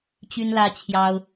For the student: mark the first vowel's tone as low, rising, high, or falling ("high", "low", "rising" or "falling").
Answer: high